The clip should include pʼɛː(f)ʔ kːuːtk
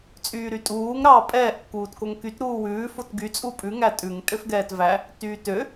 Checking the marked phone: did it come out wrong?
yes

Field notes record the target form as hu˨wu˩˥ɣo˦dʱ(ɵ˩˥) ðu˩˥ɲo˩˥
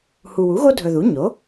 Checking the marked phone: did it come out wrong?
yes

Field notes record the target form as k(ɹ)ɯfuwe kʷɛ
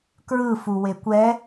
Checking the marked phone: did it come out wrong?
no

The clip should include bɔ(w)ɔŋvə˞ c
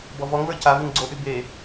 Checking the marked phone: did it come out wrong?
yes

